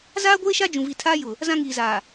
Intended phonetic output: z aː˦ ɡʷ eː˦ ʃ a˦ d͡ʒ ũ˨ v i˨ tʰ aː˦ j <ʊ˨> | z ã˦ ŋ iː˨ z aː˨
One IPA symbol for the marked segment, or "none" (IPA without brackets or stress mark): ʊ˨